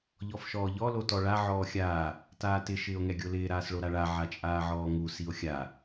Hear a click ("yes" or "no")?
no